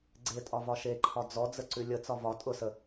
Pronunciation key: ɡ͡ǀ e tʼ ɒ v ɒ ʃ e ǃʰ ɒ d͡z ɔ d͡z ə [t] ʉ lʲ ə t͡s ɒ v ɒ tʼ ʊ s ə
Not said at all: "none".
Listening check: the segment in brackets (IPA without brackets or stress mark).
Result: ǀ